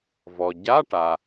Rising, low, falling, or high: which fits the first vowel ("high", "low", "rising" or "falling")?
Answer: low